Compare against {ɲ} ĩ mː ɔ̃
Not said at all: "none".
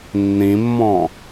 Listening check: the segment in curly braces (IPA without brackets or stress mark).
nː